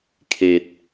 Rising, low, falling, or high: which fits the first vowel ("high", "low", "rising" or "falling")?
low